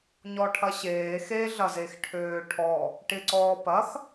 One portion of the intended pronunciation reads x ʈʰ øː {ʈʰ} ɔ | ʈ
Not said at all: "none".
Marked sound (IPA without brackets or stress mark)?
ʈʰ